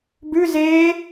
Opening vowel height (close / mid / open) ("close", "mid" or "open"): close